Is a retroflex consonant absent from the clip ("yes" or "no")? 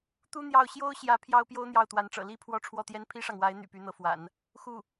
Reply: no